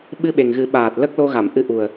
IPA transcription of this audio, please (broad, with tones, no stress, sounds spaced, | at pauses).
ɓ ɨ˧ ɓ e˨˩ ŋ ɣ ɨ˨˩˦ ɓ aː˨˩ t̚ l ə˦˥ k̚ l o˧ ɣ a˨˩˨ m ʔ ɨ˧ ʔ u˨˩ ə̯